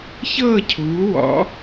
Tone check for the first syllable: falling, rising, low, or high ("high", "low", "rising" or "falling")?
falling